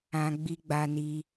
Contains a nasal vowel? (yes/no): yes